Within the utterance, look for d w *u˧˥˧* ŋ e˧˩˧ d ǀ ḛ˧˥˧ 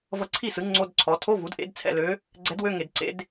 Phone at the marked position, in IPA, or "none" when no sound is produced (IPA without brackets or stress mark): ø˧˥˧